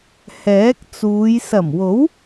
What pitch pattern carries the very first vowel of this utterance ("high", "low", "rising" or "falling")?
rising